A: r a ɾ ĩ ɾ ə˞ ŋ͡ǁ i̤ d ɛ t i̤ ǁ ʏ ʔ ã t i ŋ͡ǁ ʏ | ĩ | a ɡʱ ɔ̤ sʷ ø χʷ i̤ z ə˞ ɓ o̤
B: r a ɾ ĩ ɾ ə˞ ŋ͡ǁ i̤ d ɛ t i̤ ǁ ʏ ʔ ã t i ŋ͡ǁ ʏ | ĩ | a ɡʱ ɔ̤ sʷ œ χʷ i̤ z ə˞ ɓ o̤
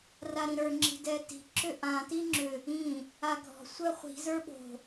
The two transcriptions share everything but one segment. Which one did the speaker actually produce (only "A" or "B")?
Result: B